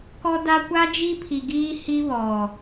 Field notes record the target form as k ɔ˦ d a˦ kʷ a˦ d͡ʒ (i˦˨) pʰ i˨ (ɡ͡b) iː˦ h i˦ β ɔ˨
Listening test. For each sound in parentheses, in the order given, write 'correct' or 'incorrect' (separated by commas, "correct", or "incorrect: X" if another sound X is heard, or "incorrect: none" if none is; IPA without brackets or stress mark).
incorrect: i˦, incorrect: ɡ